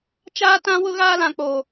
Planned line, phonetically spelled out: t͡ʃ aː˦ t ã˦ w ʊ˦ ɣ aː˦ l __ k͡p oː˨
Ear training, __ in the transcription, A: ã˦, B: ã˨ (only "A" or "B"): B